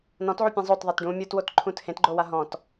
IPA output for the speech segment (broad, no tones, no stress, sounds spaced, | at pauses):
n ɔ̃ t ʕ u pʲ ẽ zˤ o t ðˤ e t ɖ ũ mʲ u t w o t ǃʰ ũ t h ẽ t ɡ͡ǃ o w a ɦ ɔ̃ t